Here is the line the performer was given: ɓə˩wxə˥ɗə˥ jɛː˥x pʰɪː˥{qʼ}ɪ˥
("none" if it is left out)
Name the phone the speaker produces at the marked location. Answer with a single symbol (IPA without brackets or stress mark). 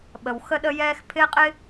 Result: qʼ